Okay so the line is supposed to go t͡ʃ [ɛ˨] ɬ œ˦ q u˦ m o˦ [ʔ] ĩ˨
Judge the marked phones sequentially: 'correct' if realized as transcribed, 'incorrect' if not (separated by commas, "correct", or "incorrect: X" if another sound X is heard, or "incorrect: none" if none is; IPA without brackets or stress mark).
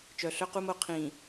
incorrect: œ˨, incorrect: qʰ